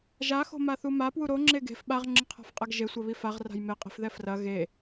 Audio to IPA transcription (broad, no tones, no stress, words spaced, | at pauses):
ʒaxo̤maθu mapwu ɾoŋ͡ǁe ɡe̤f ɓaʁŋ͡ǁɨqʰa̤fqʼaɡ ʒesʷɐβi faʁra̤j meqʼi̤fðɛ frɐ ɣe